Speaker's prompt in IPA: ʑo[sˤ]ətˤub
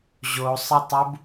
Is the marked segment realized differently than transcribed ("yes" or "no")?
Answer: no